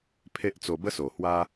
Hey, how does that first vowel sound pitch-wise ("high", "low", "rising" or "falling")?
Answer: high